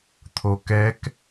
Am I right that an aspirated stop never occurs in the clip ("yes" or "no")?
no